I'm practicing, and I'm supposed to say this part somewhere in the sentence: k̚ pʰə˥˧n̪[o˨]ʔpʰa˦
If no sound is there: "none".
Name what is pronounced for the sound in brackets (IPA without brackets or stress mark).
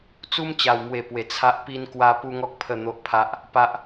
o˦